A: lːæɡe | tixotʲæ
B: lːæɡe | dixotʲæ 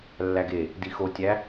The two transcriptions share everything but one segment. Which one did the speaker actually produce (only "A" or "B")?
B